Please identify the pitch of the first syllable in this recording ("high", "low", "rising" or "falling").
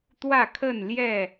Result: falling